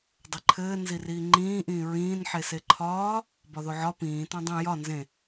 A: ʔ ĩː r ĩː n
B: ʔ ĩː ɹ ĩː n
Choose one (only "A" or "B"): B